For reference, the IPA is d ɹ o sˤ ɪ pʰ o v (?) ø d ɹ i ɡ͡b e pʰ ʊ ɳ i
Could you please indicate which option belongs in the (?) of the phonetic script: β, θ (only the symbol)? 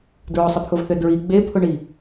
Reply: θ